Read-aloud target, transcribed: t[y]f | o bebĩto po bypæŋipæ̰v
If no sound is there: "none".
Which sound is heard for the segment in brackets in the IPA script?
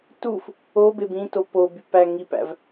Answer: u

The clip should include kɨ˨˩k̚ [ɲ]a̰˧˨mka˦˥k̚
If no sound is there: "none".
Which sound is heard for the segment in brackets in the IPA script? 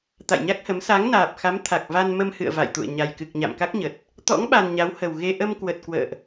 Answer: ɲ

